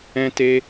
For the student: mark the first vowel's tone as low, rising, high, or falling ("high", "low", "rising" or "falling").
high